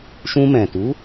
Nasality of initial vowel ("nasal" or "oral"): nasal